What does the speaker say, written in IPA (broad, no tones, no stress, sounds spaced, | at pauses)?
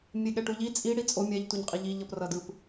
mʲ e ɠ ɛ ʈ u ʎ i t͡sʼ i ɽ i t͡sʼ o mʲ ɛ ʎ t u ɲ qʼ i ʎ i ʎ ʌ p r ʌ d ɯ p